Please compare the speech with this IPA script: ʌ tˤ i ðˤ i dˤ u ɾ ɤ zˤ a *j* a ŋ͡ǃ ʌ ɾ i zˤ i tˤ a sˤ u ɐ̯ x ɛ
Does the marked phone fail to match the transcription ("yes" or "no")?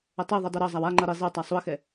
yes